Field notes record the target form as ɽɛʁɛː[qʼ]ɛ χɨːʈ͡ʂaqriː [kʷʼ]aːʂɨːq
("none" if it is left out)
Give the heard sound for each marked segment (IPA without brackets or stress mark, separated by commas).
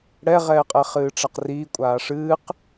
qʼ, kʷʼ